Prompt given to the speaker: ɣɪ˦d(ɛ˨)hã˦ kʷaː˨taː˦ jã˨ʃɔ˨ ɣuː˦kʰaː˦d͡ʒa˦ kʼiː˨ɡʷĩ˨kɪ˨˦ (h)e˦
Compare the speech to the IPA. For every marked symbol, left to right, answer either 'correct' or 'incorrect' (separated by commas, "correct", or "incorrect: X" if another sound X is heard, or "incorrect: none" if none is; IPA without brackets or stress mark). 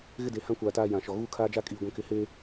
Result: incorrect: e˨, correct